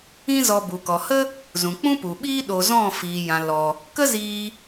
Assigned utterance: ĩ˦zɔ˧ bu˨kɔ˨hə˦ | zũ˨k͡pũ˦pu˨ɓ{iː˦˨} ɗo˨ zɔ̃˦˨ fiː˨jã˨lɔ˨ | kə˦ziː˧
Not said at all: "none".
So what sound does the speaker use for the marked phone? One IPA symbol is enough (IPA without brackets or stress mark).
iː˦